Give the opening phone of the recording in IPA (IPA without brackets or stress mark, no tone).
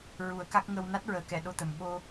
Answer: ɹ